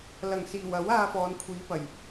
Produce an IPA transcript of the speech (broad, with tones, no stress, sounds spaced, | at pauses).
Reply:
l ɐ˨˩ ŋ s iː˨˩ w ɐ˨˥ w aː˧ f ɔː˨˧ n kʷʰ iː˨˧ p ɐ˨˩ j